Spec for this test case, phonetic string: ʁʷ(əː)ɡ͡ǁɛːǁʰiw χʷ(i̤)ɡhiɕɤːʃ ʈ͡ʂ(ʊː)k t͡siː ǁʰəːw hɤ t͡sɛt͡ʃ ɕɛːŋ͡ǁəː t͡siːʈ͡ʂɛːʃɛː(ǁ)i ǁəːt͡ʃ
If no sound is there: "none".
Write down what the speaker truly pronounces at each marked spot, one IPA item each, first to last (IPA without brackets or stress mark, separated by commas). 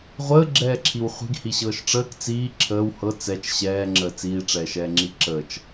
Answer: əː, i̤, əː, ŋ͡ǁ